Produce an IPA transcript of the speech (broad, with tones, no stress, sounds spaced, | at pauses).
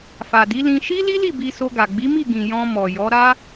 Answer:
f a˨ d i˨˦ l ĩ˧ ʃ i˦ l i˦ l i˦˨ b i˧ s o˧ ɡ a˨ ɡ͡b i˨˦ m i˦˨ ɡ ĩ˨ j ɔ̃˧ m ɔ˨ j ɔ˨˦ ɾ a˦